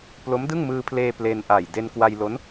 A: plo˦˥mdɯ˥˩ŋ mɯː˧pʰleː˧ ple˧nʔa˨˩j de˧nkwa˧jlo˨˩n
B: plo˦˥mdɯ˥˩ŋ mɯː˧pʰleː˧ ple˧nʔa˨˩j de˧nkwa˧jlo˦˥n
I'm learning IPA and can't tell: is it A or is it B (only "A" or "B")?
B